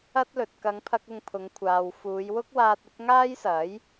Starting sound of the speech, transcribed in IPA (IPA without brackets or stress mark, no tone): ɐ